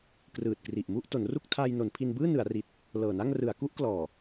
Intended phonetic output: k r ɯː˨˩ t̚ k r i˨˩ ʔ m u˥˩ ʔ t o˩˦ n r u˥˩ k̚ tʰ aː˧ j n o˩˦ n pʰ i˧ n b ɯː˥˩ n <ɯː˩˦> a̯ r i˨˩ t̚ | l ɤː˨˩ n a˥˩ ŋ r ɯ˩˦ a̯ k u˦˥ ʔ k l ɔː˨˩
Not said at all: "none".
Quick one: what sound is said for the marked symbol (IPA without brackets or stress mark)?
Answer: ɯ˩˦